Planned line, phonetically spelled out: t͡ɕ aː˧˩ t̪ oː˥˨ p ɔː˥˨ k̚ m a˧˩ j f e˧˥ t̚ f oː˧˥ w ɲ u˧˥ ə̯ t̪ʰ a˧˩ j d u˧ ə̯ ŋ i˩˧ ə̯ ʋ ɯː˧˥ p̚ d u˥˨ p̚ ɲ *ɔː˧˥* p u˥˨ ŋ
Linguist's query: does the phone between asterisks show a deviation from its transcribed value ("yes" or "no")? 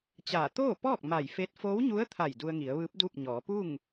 yes